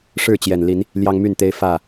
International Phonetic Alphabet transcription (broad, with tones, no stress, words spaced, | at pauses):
ʂɻ̩˥˨t͡ɕjɛ˨˩nli˨˦n | ljɑ˦ŋmy˥˨nt̪e˦ɪ̯ fä˥˨